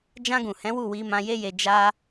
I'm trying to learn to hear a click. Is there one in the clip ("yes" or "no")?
no